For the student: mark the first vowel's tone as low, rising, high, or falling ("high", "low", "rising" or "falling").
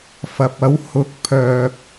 low